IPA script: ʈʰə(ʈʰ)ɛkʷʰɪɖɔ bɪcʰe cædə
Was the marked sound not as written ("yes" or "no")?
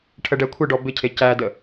yes